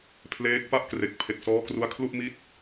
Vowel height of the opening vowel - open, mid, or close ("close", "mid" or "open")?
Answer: mid